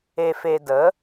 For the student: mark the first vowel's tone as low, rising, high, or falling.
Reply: low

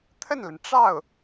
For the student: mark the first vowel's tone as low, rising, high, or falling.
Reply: falling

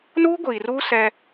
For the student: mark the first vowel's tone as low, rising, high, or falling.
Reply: high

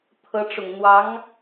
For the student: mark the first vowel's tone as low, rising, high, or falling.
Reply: rising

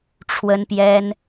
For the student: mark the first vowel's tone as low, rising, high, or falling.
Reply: high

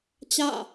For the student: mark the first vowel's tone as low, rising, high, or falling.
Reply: falling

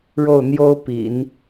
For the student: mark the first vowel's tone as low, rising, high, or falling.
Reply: falling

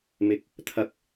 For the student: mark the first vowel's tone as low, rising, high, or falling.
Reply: high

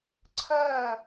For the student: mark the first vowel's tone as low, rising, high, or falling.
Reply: falling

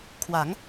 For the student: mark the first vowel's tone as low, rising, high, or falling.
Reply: rising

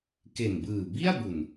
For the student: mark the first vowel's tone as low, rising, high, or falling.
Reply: low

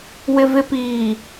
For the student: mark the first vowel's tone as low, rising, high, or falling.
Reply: low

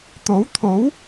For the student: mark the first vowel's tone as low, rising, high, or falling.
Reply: rising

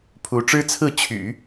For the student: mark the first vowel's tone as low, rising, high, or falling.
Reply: rising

